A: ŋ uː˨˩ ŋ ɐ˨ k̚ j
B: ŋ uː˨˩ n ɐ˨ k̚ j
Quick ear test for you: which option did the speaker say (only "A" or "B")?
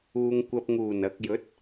B